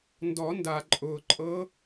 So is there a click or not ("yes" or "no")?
yes